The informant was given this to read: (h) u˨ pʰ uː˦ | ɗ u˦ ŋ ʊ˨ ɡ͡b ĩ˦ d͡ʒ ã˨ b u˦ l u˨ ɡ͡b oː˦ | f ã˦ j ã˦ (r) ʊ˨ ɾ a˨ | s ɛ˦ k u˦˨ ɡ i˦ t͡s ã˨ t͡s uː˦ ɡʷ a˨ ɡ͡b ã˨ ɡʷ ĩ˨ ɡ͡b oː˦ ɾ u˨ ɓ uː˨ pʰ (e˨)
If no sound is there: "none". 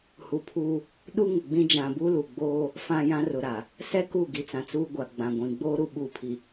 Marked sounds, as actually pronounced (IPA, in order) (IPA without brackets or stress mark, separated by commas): h, r, i˨